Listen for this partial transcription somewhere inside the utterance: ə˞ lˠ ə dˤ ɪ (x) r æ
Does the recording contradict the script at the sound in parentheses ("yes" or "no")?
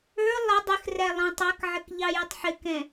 no